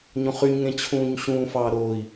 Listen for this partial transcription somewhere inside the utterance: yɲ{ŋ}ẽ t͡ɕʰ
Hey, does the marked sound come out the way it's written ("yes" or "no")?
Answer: yes